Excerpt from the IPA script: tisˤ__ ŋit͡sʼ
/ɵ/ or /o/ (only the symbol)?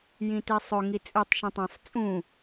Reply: ɵ